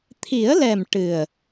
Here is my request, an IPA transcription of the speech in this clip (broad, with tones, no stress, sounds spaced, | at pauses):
t̪ʰ i˨˩˦ ə̯ l ɛ˨˩ m ʈ ɨ˨˩ ə̯